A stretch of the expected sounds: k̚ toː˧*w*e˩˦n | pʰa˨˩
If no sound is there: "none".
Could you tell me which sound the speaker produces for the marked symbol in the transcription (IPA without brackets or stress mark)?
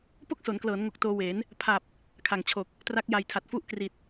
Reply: w